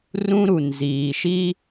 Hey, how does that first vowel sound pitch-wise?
high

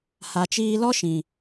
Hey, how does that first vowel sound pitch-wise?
low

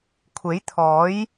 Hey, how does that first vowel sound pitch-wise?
rising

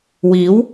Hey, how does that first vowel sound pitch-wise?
rising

